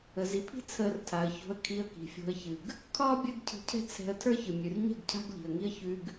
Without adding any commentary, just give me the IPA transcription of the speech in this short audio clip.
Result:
ə˨ z i˨ pʰ i̤˦ t͡sʰ əː˧ r tʰ a˨ ə̯ ç o̤˧ ə̯ kʰ i˧ ə̯ k i̤˨ fʲ o̤˧ ə̯ ç ɨ˨ ɡ | kʰ ɒː˦ bʲ əː˧ ɡ cʰ i̤˨ cʰ ɛ̤˧ t͡sʰ ɛ̤˧ ə̯ tʰ ə˞˦ ç ɨ˨ mʲ ʉ˨ r ɲ ɛ̤˦˨ ɡ cʰ a̤˦ ɡ ʎ i̤˨ ə̯ ŋ i˦ ə̯ ç ʉ˧ ɡ

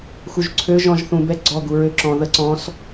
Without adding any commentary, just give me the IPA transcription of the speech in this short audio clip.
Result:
x u ʒ ǀʰ ø ʒ ɔ̃ ʒ θ ũ b ɛ ɡ͡ǀ ɔ ɡ u ɹ ø ǁ ɔ̃ ð ə ǀ ɔ̃ s

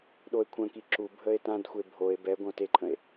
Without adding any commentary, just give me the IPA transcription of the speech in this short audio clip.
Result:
ɗ o e̯ kʷʰ ə̃ k i ǁ u bʱ ə e̯ t ã d xʷ e bʱ o e̯ b ɛ ɡʷ ə̃ o̯ t e ǃʰ ə̃ e̯

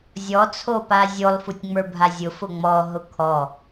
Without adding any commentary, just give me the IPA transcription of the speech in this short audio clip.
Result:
zʲ ɔ t͡sʰ o p a zʲ o lˠ f u tʲ ŋ͡m ə˞ bʱ a zʲ ʊ f ʊ ŋ͡m ɔ ɦ ʊ kʰ ɔ

